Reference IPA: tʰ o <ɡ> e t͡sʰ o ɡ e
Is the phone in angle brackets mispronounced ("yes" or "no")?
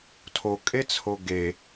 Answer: yes